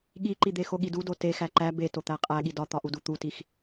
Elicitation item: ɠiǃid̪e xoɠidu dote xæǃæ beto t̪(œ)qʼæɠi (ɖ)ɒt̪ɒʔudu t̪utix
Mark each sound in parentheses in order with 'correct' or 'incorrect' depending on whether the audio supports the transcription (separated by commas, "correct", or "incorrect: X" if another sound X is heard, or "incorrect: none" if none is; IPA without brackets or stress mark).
incorrect: æ, incorrect: d